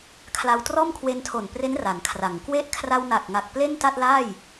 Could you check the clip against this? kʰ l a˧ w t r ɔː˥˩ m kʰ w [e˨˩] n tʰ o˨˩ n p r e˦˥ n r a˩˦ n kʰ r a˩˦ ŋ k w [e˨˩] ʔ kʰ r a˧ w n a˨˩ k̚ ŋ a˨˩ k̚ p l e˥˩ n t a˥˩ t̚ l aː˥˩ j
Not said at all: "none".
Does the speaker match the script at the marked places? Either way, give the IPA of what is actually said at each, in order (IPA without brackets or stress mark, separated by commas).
e˧, e˦˥